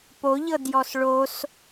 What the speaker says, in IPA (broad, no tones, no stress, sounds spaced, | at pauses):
p o ʎ ɤ d j ɔ s ɭ o s